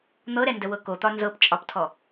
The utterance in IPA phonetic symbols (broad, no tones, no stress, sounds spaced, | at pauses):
n̪ ɤ ɾ ɛ n d ə w ɤ k o t̪ ɒ n z ɤ p t͡ʃʼ ɒ p tʰ ɔ